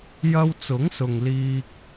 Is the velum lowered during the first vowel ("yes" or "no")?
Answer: no